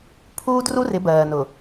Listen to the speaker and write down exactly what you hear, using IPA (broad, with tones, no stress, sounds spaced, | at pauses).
pʰ uː˦ d r u˦ r ɪ˨˦ b ɜː˨ n ʊ˨